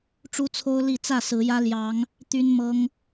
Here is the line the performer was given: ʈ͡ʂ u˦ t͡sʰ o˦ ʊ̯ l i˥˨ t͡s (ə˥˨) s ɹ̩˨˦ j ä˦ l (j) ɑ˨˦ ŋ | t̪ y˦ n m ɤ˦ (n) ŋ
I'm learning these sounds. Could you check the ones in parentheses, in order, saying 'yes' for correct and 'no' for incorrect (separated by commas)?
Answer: no, yes, no